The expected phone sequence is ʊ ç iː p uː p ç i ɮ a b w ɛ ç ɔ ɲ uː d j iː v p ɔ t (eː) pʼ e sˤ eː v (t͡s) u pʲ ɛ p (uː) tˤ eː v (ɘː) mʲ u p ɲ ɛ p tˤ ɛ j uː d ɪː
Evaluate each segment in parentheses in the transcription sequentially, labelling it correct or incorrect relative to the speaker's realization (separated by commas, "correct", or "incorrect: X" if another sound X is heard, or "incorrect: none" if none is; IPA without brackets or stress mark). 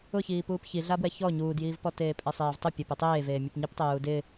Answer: correct, incorrect: tˤ, incorrect: u, incorrect: eː